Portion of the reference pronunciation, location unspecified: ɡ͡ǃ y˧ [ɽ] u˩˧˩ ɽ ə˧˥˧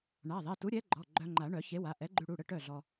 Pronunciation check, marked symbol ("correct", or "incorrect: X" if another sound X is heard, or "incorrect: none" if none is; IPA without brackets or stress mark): correct